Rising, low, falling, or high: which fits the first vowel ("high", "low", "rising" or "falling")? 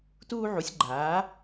high